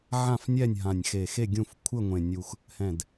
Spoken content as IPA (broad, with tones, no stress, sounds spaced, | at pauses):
ʕ ã˦˨ f nʲ ɛ˦˨ nʲ ɦ ã˨˩ nʲ x e˨˩ x e˦˨ ɡʲ ũ˦˨ f kʷʰ ɘ˦˨ ŋʷ ẽ˨˩ nʲ u˨˩ x | h ɛ̃˨˩ d